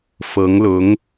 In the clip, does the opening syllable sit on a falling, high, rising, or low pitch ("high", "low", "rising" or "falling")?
rising